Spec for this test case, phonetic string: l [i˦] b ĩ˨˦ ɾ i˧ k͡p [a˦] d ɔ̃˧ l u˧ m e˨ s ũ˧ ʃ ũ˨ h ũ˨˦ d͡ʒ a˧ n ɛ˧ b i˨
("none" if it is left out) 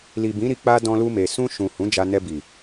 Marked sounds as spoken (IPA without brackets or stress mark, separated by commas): i˨, a˧